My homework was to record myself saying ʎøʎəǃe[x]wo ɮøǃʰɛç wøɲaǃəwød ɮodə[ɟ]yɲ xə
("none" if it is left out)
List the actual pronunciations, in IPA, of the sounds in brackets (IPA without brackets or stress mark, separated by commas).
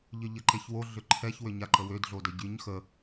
ç, ɟ